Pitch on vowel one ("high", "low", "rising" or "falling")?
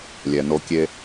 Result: low